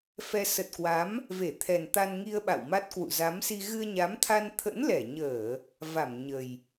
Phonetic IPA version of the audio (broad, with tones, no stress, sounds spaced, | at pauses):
f ɛ˧ s ə˨˩ t̚ k w a˨˦ m | v e˧˩ t̪ʰ ɛ˨˩ n t̪ a˧ n ŋ i˧ ə̯ ɓ a̰˧˨ w m a˦˥ t̚ k w ṵ˧˨ z a˨˦ m s i˧ ɣ ɨ˧ ə̯ ɲ a˨˦ m t̪ʰ a˧ n t̪ʰ ə̰˧˥ n l ɛ˧˩ ɲ əː˧˩˨ | v a˧˩ m ɲ ə˨˩ j